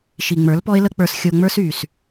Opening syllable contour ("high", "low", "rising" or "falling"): low